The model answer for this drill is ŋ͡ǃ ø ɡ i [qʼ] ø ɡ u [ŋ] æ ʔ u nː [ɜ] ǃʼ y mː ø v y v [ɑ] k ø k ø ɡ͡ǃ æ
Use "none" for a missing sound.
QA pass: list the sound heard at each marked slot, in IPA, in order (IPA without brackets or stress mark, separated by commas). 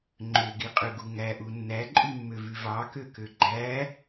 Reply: qʼ, ŋ, æ, ɑ